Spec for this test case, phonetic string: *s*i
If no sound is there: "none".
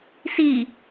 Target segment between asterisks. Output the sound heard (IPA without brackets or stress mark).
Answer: s